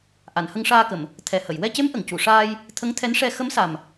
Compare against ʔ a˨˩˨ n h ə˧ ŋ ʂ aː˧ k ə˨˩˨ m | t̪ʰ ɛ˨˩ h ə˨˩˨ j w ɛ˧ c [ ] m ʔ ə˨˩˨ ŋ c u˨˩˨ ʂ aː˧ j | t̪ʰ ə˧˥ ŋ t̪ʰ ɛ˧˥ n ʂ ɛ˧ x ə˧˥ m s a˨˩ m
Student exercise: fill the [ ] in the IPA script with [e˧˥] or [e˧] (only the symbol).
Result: e˧˥